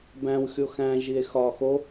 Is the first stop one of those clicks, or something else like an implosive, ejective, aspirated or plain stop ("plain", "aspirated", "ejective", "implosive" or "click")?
plain